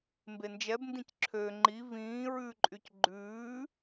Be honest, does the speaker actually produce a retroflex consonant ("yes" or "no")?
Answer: no